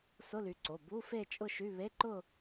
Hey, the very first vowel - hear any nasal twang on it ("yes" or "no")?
no